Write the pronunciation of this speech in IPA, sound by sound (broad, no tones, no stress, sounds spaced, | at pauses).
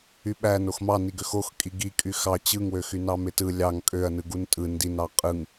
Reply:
y ɓ æ n o x m ɑ n i ɡ ø x o x kʼ i ɡ i kʼ y x ɑ t͡ɕ ɯ ŋ w ø x y n ɑ m e t ɯ lʲ ɑ ŋ kʼ ø ɐ̯ n ɯ ɡ u n tʼ ɯ n d i n ɑ qʼ ɯ ŋ